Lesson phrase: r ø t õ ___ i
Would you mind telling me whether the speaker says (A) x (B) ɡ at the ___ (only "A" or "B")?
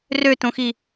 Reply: A